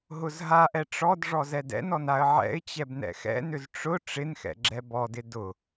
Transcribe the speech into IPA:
ɦʊzɦaʔɛ ʈ͡ʂɔd ʐɔzɛdɛ̰nɔn aə̯ʕɛ̰ɪ̯t͡ɕɛb nɛ̰xɛ̰nʏz ʈ͡ʂʊ ʈ͡ʂɪnxɛ̰ ɡ͡ǁɛbɔdɪ dʊ

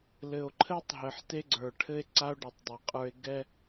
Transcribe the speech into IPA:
lɘ˨o̯ǃʰɘ˦tˤɦɘ˨ħ te˦ɡ͡ǀə˞˨ʈʰɘ˦e̯ǀa˦o̯ ɖɔ˨tˤdˤe˨qʼə˞˦e̯ ɡɛ˦

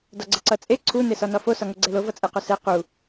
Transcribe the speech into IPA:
dɒɡ͡ǀəǀʌt͡sʼe ǀʰu nesɒnɒfo sɒŋoɡ͡ǀɛlo vʌt͡sʼɛqosɛ qu

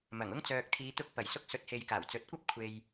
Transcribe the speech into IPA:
mɐ˨˩ŋʊ˥ŋ t͡sœː˨k̚t̪ʰiː˨˧t̪ʊ˧k̚ pɐ˨˩jsʊ˧k̚ sɵ˨˥t̚he˨j kaː˨˩wt͡sɵ˨˥t̚kʷɐ˥p̚ kʷʰe˨j

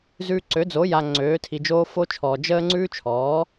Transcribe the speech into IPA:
zʉː˨ ǀø˩˥d͡zo˩˥ ja˨ ŋ͡ǀøː˩˥tʰi˨d͡ʒoː˦ fo˦t͡ʃʰɔː˨ d͡ʒəː˦ ŋ͡ǀʉː˦t͡ʃʰɔː˩˥

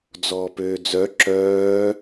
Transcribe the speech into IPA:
d͡zɔːpøːd͡zœ ǁœː

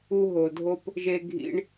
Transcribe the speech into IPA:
u˦ɦo˨dʱo˦p | ʒe˦ɡʱḭ˦ɳ

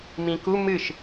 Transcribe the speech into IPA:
mĩku mɨʃ

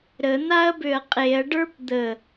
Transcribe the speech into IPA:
ɾən̪aɐ̯bøɐ̯ qʼeɐ̯ɖə˞p d̪ə

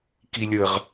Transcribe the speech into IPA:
kilʲəʁ

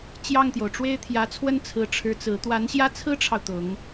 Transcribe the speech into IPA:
t͡ɕjɑ˥˩ŋt̪jo˩ʊ̯ʈ͡ʂwe˥ɪ̯ t̪ʰjä˧˥t͡sʰwə˥nt͡sʰɹ̩˧˥ ʈ͡ʂʰɻ̩˧˥ t͡sɹ̩˧˥ t̪wa˧˥nɕjä˥˩t͡sʰɹ̩˥ʈ͡ʂʰɑ˨ʊ̯ t̪ʊ˧˥ŋ

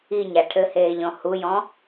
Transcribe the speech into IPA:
iɲa ʈʰɘheːʎɔ̃ hujɔ̃

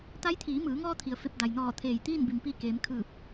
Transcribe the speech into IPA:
t̪a˧˥jt̪ʰiː˩˧mɯː˩˧ŋɔː˧ t̪ʰi˩ə̯fe˧p̚ da˩jnɔː˧˩ t̪ʰeː˧˩jt̪iː˥˨nbi˩m pi˥˨ keː˩˧mkʰɯː˧˩p̚

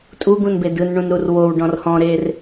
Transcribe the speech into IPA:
tʼuɡũnbe dɯnɳũnɾur wowɖɔ̃r hɔ̃ɾer

